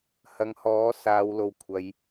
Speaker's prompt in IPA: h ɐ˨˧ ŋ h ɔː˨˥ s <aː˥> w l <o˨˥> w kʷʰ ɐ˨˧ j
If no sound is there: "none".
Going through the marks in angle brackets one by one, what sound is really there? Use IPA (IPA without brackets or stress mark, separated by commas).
aː˨˧, o˨